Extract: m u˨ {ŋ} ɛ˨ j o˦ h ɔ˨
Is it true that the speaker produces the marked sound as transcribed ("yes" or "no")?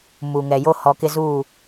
yes